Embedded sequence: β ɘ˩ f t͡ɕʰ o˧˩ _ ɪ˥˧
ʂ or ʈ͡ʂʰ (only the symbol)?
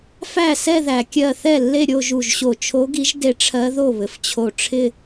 ʈ͡ʂʰ